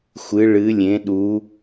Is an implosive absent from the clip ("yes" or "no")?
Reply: no